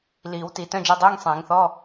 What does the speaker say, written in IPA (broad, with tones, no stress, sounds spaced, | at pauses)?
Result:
l iː˨˩˦ w t i˨˩˦ t œ̃˧˥˧ d͡ʒ ɤ˧˥˧ dˤ iː˧˥˧ ŋ sˤ ẽː˨˩˦ ŋ θ ɔ˧˥˧